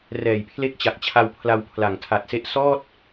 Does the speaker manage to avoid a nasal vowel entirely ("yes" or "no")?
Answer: yes